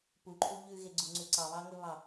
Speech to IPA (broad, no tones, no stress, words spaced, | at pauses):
puǃʰu ʎʉɣeɡ͡ǀuŋ͡ǀʉ ǀɑβɑŋɵβɑ